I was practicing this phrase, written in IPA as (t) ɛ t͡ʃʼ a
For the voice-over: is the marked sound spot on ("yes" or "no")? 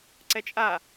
no